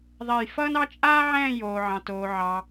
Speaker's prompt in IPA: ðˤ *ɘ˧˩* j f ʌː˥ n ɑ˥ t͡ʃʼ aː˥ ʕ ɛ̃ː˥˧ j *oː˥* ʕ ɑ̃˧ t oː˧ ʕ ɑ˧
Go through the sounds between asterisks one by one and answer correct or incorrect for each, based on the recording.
incorrect, incorrect

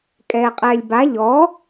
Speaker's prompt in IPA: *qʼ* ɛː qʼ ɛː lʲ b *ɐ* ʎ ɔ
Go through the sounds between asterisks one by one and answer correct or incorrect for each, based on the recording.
incorrect, incorrect

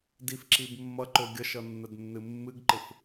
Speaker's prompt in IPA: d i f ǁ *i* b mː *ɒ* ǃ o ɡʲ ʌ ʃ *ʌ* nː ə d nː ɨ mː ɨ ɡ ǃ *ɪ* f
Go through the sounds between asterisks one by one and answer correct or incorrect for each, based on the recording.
correct, incorrect, correct, correct

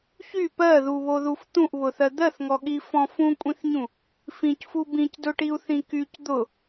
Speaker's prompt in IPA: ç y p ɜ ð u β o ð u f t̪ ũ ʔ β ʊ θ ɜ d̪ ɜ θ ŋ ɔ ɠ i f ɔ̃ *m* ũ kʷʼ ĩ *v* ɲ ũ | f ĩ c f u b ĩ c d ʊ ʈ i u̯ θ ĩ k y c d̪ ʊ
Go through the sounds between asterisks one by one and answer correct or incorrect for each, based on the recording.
incorrect, incorrect

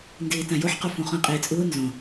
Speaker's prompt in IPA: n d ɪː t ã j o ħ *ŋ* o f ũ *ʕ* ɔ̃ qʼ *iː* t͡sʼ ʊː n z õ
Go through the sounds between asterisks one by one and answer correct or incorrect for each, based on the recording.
incorrect, incorrect, incorrect

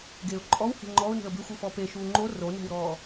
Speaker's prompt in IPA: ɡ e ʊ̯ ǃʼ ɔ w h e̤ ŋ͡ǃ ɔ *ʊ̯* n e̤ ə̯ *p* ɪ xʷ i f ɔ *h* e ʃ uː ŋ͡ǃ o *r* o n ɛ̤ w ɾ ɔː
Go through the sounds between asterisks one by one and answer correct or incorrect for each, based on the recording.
correct, incorrect, incorrect, correct

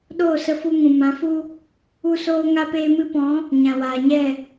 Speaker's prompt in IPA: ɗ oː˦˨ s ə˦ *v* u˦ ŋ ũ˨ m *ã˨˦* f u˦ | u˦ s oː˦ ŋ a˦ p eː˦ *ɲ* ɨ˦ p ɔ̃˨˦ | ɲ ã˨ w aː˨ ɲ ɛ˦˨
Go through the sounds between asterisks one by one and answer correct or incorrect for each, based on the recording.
incorrect, correct, incorrect

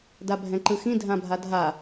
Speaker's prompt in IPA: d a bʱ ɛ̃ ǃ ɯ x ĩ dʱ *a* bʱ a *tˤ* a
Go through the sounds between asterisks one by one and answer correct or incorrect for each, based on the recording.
incorrect, incorrect

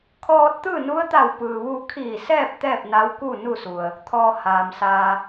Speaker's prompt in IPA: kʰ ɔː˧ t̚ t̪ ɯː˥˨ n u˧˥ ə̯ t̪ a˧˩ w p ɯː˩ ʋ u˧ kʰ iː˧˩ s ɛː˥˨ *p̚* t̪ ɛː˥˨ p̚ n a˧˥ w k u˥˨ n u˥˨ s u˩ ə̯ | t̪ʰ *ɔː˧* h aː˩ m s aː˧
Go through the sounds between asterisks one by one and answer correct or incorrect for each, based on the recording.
correct, correct

